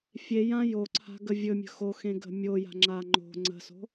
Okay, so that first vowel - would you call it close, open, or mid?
mid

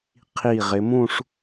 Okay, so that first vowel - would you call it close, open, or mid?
close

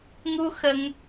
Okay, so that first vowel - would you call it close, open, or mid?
close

